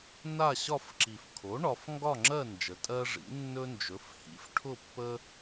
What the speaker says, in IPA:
n a˥˨ ɕ ɒ˥˨ f ǁ i˨˩ f kʰ o˩˥ ɳ ɒ˩˧ f ŋ ɡ ɒ˥˨ ŋ͡ǁ ɜ˥˨ n d͡ʒ ə˩˧ tʼ ɜ˦ ʐ ḭ˩˥ nː ɵ˦ n d͡ʒ ɵ˩˥ f h ḭ˩˥ f ʈʰ ʊ˥˨ pː ə˦

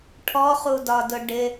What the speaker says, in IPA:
ʈʰ ɔ χ u d ɒ d ʊ ɖ ɪ

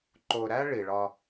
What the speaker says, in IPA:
ǃ o˨ ɾ æ˦ ɭ i˨ ɭ ɒ˦

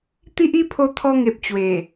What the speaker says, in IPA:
t̪ i˦ ʔ i˦ pʰ o˧ t̪ʰ ɔ˧ ŋ e˨ p̚ t͡ɕ w e˨˩

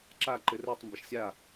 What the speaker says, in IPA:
ǁ a ǃ ɘ r ə˞ tˤ m b ə ʃ sʲ a

